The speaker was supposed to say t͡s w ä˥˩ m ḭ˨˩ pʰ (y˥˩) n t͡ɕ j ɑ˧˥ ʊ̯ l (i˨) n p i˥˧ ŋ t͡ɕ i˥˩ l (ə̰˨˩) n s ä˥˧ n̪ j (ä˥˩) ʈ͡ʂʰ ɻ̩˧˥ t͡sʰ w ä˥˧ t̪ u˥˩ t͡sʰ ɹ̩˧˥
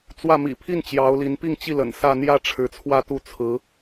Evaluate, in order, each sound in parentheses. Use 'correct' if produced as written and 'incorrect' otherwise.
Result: incorrect, incorrect, correct, correct

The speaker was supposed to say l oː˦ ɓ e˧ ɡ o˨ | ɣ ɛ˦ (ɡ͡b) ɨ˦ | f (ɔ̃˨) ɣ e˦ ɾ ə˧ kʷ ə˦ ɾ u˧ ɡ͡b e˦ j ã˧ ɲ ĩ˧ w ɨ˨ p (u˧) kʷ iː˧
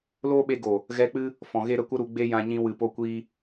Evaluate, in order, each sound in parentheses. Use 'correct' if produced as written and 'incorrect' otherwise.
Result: incorrect, correct, incorrect

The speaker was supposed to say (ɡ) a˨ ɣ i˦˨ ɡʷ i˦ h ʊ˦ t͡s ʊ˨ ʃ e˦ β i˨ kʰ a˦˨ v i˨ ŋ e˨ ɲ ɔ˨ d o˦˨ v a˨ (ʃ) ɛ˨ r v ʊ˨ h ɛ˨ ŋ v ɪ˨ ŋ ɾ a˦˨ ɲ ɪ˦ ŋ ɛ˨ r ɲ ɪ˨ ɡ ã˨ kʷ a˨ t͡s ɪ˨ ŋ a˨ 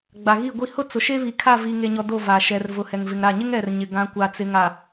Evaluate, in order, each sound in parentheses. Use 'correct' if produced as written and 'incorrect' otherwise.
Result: incorrect, correct

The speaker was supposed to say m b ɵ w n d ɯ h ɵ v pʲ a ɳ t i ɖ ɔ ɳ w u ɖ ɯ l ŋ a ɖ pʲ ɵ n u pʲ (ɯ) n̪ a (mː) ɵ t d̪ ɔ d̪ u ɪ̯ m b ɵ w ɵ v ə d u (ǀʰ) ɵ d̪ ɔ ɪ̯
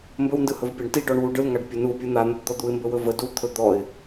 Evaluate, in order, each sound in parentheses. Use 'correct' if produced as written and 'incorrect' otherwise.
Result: correct, incorrect, incorrect

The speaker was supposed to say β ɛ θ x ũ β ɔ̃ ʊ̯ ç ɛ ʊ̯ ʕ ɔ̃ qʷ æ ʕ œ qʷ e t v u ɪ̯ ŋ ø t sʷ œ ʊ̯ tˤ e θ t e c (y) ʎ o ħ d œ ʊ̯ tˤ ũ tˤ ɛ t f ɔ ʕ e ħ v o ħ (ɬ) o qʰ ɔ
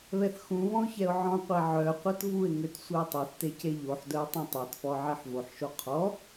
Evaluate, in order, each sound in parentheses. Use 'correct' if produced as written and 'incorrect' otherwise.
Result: incorrect, incorrect

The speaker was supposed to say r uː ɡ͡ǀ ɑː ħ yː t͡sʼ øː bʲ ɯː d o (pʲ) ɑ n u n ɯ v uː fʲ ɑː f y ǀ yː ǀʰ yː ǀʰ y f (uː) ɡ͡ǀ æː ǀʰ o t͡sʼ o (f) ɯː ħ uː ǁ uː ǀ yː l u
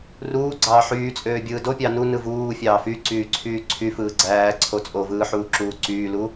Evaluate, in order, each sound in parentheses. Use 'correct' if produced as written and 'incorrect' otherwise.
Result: correct, incorrect, incorrect

